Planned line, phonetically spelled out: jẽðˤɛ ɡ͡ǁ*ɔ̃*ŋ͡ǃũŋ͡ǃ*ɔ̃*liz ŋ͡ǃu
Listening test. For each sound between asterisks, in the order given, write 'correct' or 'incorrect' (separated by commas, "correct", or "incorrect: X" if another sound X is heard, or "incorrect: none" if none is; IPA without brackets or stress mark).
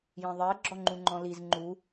incorrect: ɔ, correct